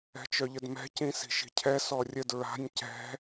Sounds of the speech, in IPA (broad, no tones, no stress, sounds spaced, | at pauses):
ɛ̤ t͡ʃ œ ʎ ə d m ɛ̤ c ĩ s i̤ ʃ i̤ cʰ ɛ s ɔ rʲ ə d ɹ a̤ nʲ c ɛ̤